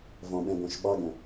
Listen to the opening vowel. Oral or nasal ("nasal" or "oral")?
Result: nasal